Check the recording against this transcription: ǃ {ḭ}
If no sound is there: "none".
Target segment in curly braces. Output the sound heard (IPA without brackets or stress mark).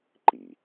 ḭ